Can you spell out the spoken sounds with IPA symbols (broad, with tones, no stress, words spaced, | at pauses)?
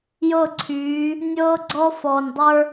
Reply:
jɤ˦˨ǀʰyː˨˦ | nʲɤː˦ɡ͡ǀɔ˦ fɔː˨nʲdˤə˞˦